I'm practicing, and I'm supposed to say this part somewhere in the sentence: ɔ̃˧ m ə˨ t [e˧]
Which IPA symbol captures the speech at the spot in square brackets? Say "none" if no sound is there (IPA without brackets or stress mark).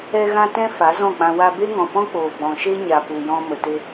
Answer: e˧